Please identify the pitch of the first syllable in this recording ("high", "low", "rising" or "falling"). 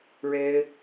high